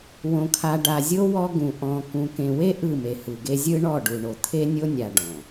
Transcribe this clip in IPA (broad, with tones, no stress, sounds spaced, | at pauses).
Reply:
w õ˨ kʰ a˨ ɖ a˨ zʲ o˦ w ɔ˦ ɡ ũ˨ ʔ ɔ̃˨ k ũ˨ k ẽ˨ w e˦ ʔ ɯ˦˨ m e˨ h ɯ˨ ɡ e˦ zʲ ɯ˦ ɳ ɔ˦˨ ɖ u˨ ɳ o˨ t̪ʰ e˦ nʲ o˦ nʲ a˨ ɖ ɔ̃˨